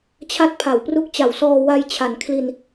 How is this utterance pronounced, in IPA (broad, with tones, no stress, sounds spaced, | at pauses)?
t͡ɕʰ a˦˥ t̚ pʰ a˩˦ w p r u˦˥ k̚ t͡ɕ a˨˩ w s ɔː˧ w a˧ j t͡ɕʰ a˩˦ n kʰ l i˧ n